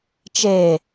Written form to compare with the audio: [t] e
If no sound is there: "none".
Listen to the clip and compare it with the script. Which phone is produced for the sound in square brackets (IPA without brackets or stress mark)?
t͡ʃ